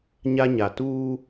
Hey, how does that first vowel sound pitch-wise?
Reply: high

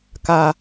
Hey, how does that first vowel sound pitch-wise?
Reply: high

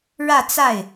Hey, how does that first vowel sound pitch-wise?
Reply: falling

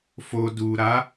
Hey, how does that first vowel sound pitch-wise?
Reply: low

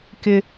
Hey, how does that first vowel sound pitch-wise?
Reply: high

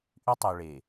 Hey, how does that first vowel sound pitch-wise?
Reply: high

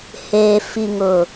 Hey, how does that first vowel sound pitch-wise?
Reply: low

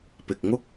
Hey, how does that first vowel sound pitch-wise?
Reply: low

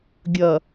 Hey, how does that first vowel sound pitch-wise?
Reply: low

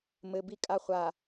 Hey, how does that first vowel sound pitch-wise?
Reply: low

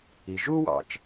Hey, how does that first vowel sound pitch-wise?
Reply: low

